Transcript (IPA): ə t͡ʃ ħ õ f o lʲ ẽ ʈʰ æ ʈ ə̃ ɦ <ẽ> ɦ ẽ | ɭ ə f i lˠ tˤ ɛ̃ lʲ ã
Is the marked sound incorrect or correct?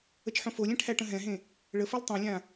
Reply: incorrect